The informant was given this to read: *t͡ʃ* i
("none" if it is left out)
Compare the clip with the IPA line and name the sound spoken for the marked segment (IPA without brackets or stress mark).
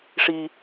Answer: ʂ